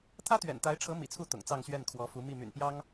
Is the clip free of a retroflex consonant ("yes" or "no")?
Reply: no